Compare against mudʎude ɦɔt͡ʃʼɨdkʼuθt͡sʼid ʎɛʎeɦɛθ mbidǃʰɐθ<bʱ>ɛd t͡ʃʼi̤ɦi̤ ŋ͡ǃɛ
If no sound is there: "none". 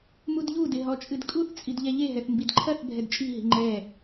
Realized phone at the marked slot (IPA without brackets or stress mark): bʱ